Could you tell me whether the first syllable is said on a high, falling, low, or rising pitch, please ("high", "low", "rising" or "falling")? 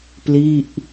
falling